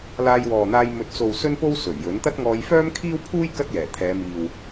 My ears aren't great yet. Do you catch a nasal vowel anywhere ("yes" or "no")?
no